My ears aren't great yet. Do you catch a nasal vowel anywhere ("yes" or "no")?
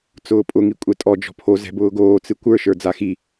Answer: no